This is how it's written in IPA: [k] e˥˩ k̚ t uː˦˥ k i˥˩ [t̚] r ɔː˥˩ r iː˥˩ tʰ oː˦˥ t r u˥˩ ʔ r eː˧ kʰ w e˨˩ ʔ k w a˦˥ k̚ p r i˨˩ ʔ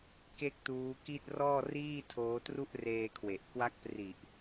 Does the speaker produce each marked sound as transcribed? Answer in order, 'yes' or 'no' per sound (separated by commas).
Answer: yes, yes